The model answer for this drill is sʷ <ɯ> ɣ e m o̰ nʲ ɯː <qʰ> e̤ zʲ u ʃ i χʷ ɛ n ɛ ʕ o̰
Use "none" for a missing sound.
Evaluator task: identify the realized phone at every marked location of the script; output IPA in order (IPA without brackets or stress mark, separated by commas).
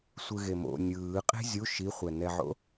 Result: ɯ, qʼ